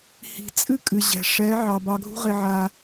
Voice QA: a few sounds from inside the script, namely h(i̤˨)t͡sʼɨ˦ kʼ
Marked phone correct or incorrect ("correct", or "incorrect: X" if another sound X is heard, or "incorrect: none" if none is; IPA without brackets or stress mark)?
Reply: correct